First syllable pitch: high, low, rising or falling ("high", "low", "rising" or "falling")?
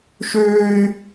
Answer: high